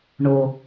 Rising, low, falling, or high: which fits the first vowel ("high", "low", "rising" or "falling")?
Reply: low